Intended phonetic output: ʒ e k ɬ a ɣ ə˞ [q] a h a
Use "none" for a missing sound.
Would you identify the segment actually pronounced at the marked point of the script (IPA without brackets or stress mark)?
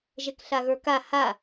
k